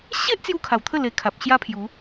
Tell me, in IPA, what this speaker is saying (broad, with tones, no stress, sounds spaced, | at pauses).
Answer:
ɕ e˦ ʔ t͡s j u˦ kʰ a˨˩ w t̪ʰ ə˥˧ l e˧ kʰ a˨ p̚ ɕ j a˦ pʰ j u˨˦